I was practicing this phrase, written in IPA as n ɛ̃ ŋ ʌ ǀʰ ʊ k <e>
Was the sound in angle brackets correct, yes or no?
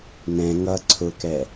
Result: no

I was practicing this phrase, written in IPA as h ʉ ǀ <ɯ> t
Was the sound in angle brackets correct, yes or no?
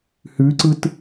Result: yes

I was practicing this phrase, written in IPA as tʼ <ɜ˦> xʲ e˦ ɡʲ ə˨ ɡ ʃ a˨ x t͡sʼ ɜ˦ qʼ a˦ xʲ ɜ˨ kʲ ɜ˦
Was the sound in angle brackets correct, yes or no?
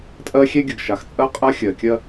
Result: yes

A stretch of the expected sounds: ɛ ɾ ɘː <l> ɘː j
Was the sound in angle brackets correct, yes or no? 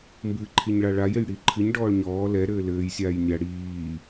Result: yes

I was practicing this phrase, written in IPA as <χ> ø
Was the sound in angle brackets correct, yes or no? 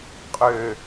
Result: no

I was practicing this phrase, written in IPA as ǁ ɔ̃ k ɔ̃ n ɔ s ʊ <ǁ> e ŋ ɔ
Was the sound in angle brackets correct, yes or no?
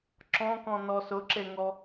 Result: yes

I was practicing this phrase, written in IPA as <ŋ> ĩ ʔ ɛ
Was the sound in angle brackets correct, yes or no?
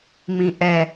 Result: no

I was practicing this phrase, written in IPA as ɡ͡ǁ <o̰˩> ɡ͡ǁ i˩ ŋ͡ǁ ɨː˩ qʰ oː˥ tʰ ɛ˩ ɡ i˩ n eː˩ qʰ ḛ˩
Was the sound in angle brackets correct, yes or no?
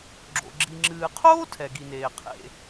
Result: yes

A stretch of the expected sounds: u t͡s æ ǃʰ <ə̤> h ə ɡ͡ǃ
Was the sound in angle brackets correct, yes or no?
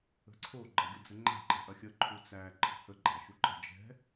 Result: yes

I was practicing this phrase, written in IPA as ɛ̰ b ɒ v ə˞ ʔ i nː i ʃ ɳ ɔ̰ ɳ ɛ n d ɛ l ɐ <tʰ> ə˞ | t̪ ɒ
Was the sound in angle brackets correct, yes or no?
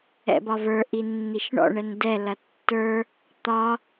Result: no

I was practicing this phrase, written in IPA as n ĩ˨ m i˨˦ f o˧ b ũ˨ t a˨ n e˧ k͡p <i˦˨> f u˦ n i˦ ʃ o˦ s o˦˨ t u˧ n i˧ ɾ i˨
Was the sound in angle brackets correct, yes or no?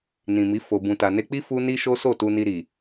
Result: no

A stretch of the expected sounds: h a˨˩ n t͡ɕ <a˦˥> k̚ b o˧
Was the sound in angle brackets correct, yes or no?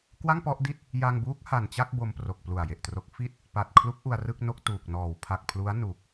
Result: no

